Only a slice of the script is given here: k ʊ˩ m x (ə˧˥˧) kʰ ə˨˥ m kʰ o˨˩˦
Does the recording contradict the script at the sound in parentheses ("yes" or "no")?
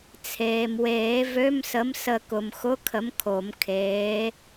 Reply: yes